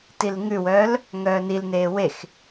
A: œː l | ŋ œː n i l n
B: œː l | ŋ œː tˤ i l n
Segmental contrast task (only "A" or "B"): A